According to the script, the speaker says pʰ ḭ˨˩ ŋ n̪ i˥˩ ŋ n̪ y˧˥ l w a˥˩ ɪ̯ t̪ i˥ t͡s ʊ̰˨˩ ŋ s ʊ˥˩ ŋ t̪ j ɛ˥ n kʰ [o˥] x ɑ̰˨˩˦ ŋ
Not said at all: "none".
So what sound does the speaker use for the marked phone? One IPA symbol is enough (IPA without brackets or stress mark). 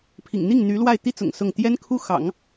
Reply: u˥